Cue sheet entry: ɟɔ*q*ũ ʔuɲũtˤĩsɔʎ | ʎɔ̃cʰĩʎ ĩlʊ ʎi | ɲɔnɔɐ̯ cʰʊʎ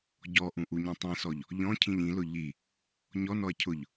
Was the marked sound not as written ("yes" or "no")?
yes